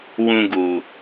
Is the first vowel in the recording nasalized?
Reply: yes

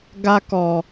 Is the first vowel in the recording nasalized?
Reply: no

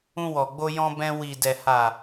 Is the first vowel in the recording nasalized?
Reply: yes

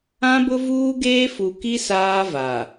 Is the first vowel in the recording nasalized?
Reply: yes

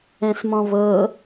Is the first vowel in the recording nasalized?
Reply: yes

